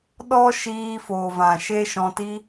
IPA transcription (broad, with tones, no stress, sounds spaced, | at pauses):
ɗ ɔ˦ ʃ iː˧ f oː˨ v ã˨ ʃ e˦ ʃ ɔ̃˧ t i˦